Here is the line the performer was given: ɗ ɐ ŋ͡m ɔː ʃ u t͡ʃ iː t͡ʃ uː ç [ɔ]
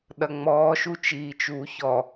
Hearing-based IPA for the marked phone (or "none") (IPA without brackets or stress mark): ɔ